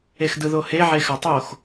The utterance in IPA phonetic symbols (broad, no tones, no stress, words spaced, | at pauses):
exdɯðohe ʕexatˤox